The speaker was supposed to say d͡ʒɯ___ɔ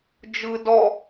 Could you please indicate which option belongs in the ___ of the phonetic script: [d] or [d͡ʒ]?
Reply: d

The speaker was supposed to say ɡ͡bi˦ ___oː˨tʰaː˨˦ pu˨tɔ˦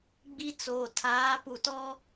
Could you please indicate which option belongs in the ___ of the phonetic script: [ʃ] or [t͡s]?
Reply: t͡s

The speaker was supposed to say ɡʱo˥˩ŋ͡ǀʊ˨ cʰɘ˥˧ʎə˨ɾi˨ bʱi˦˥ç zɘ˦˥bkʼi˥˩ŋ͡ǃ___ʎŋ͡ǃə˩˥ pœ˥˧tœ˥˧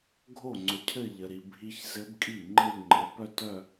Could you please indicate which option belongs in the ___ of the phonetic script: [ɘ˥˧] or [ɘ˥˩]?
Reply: ɘ˥˧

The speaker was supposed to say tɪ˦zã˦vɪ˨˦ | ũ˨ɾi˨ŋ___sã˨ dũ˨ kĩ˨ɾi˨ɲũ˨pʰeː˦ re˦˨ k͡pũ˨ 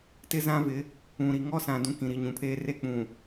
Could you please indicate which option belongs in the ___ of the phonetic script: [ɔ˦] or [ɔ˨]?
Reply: ɔ˦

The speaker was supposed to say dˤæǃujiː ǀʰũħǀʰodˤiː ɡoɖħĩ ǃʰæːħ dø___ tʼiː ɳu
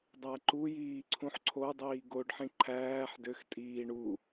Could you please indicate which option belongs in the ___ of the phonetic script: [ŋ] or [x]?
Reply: x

